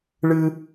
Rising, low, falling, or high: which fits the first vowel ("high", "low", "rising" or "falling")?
high